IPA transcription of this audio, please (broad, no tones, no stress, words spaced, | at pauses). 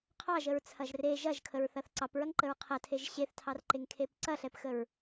qʰɑʒəɹt͡sʰɐʒ re ʒɐʒkʰəɹθɐθ ǀɑpɹɐŋǃəɹ qʰɐtʰeʒ ɕeθtʰɑrǃeŋkʰep ǀɐɬɛpxəɹ